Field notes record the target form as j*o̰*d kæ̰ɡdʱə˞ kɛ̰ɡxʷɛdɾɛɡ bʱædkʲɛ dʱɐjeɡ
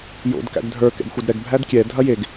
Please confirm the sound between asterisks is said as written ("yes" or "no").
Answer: yes